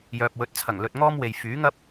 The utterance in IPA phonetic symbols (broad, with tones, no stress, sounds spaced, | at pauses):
j œː˨ p̚ w ɵ˨˥ t̚ t͡sʰ ɐ˨˩ ŋ l ɵ˧ t̚ ŋ ɔː˥ m w e˨ j f yː˨˥ ŋ ɐ˥ p̚